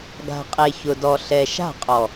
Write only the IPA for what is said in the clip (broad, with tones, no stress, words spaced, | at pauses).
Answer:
ɡa̤˨qʼe˨çʊ˨dɔ˨ ɬɛ˨ʃa̤˦˨qʼɔ˨